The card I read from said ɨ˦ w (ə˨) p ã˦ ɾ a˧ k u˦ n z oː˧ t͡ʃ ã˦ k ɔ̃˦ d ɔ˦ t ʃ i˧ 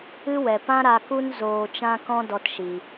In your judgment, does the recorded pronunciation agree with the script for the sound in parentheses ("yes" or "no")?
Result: no